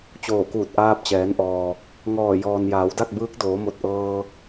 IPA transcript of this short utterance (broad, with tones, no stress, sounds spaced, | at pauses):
t͡ɕ oː˧˩ k uː˧˩ t̚ ʔ aː˧ p̚ t͡ɕ ɛː˩˧ n ʔ ɔː˩ | ŋ ɔː˧˩ j ɔː˩ n j aː˩˧ w d a˥˨ k̚ b ɯː˧˥ k̚ d oː˩˧ m o˧˩ t̚ ʔ ɤː˧